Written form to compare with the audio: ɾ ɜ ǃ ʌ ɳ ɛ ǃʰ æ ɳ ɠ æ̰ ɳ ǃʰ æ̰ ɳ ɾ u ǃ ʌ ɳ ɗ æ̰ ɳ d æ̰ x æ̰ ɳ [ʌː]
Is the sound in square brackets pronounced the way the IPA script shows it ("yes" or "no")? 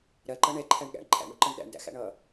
yes